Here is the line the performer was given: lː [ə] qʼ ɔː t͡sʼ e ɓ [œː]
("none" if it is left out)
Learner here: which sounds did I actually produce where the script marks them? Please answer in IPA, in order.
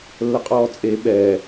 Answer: ə, ɛː

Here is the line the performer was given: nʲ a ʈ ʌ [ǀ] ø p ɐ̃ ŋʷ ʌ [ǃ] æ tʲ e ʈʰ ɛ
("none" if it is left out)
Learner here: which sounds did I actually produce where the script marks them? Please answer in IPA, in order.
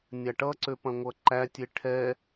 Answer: ǀ, ǃ

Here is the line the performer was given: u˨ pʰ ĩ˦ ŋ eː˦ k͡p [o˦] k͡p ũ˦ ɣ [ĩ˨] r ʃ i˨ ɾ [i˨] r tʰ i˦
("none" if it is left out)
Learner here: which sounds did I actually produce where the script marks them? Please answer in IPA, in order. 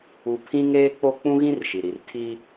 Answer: o˦, ĩ˦, i˨

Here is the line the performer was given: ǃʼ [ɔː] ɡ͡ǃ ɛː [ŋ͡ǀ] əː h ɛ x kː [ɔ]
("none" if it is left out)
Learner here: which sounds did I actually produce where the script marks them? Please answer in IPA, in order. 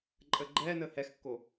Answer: əː, n, o

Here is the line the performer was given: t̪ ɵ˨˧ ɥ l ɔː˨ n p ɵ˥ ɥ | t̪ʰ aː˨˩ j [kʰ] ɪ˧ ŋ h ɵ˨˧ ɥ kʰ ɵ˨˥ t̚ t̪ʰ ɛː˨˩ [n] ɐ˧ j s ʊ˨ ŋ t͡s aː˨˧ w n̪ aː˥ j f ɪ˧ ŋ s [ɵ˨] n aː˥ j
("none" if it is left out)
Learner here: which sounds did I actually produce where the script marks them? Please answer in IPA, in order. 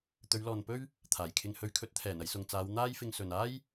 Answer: kʰ, n, ɵ˨

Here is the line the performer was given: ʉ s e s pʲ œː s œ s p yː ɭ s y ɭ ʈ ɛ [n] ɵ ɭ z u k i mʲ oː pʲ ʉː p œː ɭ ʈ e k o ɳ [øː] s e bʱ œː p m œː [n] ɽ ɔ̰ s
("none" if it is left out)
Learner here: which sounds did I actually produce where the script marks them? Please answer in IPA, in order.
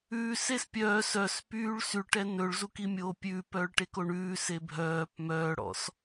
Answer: n, ʉː, none

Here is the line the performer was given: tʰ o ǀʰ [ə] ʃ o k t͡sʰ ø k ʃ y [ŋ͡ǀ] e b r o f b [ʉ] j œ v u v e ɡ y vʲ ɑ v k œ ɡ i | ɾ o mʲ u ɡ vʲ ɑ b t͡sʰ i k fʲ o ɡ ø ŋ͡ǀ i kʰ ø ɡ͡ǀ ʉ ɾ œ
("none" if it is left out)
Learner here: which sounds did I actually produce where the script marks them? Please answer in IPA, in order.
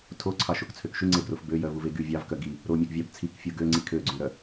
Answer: ɑ, ŋ͡ǀ, ø

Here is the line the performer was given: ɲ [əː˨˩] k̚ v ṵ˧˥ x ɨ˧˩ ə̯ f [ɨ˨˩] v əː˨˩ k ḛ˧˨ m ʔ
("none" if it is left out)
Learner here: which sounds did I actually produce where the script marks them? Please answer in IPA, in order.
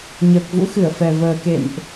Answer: əː˨˩, ɛ˨˩

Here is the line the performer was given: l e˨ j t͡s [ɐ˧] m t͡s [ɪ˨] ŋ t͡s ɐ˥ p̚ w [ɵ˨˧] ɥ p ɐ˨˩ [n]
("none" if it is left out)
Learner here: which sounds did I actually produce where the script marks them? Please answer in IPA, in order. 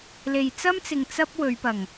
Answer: ɐ˥, ɪ˨, ɵ˨˧, ŋ

